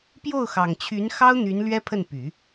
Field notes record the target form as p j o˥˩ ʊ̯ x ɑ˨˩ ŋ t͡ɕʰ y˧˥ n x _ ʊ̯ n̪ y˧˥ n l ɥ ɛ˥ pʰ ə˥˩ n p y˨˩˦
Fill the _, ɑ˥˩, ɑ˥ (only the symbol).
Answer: ɑ˥